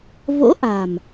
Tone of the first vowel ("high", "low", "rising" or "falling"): rising